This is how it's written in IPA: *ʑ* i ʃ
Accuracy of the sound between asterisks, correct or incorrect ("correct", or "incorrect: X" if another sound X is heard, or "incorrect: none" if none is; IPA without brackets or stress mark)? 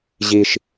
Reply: correct